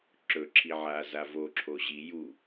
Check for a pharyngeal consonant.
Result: present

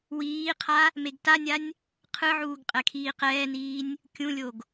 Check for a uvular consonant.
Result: present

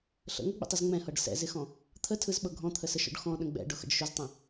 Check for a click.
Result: absent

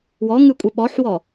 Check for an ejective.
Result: present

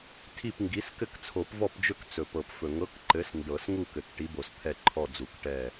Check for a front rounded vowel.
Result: absent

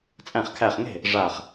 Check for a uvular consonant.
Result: present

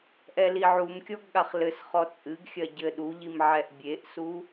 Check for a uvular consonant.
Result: present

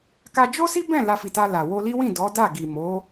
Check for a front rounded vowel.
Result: absent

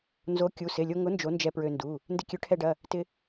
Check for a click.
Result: absent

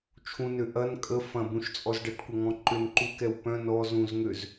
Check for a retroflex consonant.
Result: present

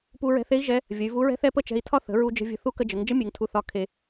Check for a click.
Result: absent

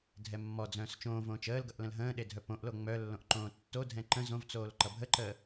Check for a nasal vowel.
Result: present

